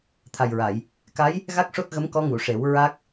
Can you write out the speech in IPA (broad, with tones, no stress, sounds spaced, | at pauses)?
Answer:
t̪ʰ a˨˩ j ɹ a˨˩˨ j | k a˧˥ j | ɣ a˦˥ k̚ ʂ o˦˥ t̚ ɣ ə˧˥ m k ɔ˧˥ ŋ u˨˩˨ ʂ e˨˩˦ w ɹ a˦˥ k̚